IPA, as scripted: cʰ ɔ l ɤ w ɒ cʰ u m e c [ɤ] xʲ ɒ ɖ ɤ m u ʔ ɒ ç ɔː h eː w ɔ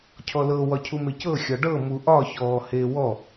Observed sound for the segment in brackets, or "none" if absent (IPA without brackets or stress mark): ɤ